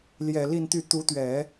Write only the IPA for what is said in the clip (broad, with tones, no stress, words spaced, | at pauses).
ljɛ˨˩li˥˧nt̪y˥˩ t̪u˧˥t̪ɥɛ˨˩˦